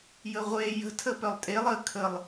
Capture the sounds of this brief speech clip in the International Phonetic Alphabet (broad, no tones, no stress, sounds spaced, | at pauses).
j ə ʁʷ e j ə̤ tʰ ə p œ lˠ tʼ e lˠ ə kʰ ə lˠ